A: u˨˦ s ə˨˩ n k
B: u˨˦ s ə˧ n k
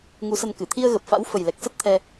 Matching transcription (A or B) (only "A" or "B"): B